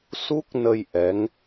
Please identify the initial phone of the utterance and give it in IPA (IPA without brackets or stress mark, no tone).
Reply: s